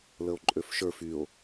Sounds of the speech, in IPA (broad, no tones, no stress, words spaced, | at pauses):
ləo̯ǃʼøfʃə˞f yo̯